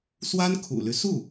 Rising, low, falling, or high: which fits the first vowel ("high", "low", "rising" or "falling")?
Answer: high